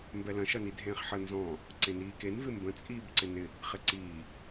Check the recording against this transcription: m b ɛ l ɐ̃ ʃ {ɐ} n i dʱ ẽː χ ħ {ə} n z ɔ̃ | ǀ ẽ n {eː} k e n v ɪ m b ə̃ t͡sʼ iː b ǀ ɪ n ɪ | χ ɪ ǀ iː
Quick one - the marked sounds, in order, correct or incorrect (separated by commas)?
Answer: correct, correct, incorrect